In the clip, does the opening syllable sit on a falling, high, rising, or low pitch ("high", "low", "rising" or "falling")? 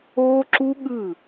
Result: high